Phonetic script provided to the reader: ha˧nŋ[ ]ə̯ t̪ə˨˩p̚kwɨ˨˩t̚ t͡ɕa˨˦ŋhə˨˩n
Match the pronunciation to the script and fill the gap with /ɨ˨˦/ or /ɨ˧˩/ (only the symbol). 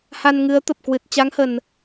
ɨ˨˦